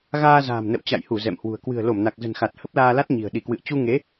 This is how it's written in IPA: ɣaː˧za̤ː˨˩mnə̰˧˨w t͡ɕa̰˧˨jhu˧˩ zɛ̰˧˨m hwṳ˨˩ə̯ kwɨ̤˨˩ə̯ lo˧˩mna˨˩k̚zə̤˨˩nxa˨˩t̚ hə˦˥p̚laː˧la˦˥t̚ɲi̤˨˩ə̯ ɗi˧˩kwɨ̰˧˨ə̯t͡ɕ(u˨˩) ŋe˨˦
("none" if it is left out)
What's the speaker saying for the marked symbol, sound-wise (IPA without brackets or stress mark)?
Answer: u˧